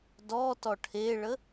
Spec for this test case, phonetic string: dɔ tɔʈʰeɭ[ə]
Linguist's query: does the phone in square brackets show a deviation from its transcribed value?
no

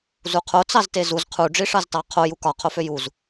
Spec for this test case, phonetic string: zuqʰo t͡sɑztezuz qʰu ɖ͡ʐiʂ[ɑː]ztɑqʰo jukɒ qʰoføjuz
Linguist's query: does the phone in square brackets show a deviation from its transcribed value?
yes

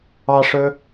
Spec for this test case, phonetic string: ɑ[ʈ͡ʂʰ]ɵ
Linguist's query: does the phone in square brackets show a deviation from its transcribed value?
yes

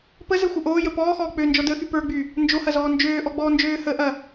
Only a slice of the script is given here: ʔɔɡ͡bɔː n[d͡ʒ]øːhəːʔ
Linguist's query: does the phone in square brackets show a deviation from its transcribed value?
no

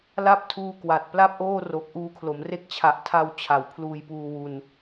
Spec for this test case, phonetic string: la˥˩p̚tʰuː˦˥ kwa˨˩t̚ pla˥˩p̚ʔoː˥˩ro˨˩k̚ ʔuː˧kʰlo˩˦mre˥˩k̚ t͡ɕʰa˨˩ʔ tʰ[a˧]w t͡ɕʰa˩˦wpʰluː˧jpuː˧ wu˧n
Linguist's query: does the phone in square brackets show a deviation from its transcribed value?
no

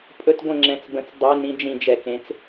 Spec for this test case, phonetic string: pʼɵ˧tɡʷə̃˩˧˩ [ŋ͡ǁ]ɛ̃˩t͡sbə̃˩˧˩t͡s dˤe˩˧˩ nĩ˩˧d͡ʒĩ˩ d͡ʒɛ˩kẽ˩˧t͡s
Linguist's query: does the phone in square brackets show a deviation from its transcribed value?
no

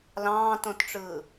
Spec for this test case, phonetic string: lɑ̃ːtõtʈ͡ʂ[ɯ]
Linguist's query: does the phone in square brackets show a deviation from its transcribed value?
yes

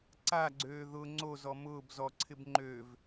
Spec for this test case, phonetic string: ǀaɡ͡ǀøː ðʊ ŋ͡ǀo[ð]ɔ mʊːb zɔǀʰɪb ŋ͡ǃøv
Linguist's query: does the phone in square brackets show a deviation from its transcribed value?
yes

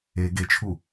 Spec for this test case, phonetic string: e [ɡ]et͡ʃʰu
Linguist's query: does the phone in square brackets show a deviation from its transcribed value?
no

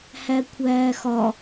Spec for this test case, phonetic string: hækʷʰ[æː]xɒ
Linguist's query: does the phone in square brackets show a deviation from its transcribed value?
no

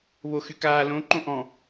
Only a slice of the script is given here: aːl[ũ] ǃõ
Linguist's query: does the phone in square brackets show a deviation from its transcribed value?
yes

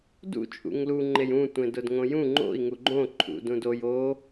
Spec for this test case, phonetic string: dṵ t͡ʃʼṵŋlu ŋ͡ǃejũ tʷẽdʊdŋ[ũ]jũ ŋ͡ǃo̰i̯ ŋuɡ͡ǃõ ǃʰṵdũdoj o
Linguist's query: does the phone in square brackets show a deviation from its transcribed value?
yes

